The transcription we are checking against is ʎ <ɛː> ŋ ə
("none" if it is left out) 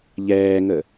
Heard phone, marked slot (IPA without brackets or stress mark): ɛː